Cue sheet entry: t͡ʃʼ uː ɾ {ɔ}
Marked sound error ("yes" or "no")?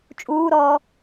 yes